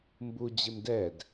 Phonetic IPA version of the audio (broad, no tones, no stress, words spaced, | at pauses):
mbu d͡ʑɪmdɛd